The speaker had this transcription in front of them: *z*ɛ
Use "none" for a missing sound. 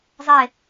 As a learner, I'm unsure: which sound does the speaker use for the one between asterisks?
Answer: zˤ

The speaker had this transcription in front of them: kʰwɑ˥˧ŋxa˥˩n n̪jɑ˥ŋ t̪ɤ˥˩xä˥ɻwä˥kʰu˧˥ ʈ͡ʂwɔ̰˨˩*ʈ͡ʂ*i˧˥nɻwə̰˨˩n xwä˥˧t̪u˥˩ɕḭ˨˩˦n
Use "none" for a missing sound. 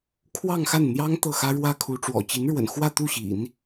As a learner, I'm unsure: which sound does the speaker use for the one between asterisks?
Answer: t͡ɕ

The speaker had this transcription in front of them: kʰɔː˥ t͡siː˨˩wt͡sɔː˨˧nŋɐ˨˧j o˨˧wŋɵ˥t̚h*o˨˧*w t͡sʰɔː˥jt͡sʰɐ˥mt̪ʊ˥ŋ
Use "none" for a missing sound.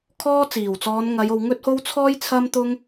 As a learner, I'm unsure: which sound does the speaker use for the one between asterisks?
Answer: o˥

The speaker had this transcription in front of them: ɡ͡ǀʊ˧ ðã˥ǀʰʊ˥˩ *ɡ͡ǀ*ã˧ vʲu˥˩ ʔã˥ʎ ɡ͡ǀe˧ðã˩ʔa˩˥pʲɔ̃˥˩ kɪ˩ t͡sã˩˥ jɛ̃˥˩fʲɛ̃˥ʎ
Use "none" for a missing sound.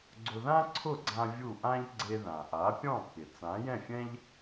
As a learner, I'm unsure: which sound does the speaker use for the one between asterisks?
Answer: ɡ͡ǀ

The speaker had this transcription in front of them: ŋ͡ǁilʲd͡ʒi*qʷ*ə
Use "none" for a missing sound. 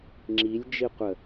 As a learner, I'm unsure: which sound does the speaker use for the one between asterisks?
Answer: qʷ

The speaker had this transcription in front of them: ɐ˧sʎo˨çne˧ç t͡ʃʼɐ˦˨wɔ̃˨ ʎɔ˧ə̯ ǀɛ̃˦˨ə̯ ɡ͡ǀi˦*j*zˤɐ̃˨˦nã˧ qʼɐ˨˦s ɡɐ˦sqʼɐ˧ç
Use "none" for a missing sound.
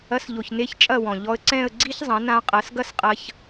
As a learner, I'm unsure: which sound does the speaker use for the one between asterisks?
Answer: ç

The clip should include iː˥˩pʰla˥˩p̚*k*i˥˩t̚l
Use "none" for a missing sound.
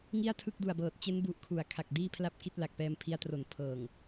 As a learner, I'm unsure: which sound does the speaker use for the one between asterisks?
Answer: k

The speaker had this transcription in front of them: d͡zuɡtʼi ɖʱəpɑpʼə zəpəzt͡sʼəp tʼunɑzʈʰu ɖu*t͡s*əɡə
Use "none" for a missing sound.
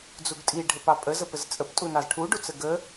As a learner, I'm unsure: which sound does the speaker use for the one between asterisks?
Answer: t͡s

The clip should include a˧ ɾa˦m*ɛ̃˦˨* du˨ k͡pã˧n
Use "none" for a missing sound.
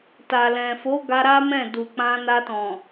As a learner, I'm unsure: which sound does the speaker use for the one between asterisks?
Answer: ɛ̃˦˨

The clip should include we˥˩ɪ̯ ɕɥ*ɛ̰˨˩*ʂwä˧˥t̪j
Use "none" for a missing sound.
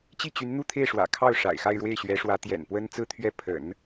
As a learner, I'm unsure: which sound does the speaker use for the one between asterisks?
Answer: ɛ˧˥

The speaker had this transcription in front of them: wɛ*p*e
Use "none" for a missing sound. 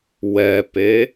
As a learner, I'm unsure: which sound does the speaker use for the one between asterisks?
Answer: p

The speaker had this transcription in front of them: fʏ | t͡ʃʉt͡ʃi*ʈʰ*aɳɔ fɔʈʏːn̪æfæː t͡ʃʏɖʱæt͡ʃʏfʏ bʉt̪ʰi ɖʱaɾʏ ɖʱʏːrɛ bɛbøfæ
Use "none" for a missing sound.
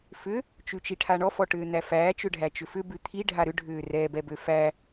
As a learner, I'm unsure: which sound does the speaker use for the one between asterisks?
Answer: ʈʰ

